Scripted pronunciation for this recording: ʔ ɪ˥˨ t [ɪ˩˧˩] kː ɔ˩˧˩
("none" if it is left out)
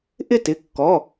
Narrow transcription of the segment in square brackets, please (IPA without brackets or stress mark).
ɪ˩˧˩